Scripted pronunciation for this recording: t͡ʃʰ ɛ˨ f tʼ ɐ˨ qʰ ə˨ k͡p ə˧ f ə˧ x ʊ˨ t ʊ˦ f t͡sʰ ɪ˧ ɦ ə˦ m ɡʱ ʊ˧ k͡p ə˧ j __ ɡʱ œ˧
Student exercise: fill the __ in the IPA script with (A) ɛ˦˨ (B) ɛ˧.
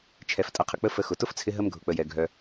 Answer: B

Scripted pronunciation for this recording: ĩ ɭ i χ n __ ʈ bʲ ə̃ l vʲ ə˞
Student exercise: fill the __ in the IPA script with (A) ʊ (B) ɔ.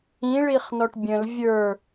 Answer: B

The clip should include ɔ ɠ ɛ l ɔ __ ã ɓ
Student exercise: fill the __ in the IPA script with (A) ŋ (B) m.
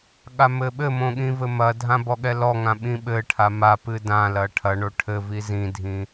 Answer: A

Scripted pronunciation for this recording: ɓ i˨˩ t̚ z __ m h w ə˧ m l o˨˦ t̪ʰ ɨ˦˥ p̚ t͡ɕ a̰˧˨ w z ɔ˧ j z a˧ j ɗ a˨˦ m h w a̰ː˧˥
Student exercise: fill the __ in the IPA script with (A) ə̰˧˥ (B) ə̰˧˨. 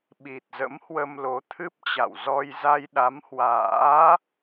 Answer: A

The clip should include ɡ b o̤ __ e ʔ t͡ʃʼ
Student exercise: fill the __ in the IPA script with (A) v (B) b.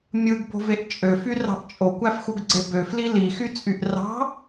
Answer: A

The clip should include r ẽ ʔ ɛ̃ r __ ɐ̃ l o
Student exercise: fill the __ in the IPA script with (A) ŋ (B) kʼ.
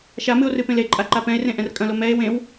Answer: B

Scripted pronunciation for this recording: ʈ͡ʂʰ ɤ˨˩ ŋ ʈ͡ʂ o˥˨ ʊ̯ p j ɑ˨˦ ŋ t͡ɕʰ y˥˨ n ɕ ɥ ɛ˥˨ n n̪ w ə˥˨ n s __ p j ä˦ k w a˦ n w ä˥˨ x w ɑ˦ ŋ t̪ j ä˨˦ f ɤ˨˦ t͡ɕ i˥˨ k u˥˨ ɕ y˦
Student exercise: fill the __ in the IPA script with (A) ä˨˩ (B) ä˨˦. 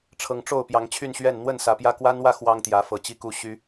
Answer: A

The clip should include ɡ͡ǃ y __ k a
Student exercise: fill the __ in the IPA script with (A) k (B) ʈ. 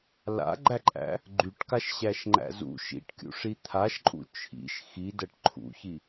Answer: B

